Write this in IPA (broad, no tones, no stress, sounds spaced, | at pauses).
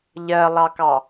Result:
ʎ ɜ lˠ ɑ k ɑ